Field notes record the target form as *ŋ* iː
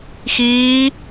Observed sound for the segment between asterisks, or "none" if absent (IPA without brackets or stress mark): x